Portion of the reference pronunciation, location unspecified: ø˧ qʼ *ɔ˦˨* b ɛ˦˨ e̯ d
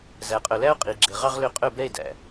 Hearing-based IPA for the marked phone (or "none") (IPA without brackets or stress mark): ɵ˦˨